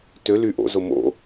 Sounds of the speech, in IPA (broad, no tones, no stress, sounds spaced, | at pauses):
t ø l y ʔ o̰ z o m o̰